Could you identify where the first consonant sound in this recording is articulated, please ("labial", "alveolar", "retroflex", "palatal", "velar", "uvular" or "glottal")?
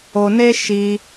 alveolar